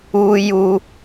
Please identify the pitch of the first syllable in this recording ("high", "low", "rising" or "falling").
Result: high